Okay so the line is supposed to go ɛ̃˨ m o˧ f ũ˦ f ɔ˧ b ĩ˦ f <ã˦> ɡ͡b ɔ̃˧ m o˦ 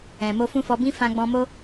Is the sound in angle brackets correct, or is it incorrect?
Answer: incorrect